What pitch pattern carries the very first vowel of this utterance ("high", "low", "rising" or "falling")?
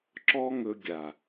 high